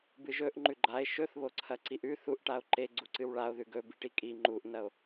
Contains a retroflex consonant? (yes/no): yes